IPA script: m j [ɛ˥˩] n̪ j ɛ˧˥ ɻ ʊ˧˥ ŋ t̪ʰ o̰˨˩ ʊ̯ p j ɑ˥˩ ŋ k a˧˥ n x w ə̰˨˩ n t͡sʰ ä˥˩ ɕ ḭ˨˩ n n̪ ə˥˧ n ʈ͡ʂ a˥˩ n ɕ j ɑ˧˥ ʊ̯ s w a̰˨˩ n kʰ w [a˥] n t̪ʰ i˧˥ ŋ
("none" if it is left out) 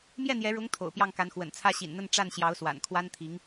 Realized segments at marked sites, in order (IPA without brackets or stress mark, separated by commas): ɛ˥˩, a˥